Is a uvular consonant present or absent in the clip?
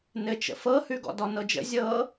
absent